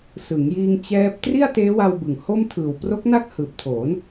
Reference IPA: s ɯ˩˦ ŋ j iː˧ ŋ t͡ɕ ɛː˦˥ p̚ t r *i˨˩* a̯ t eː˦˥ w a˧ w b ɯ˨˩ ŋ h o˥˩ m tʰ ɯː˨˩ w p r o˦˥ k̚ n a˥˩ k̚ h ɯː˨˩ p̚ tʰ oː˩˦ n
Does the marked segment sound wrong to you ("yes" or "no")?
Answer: yes